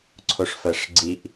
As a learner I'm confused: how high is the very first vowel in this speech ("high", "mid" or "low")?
mid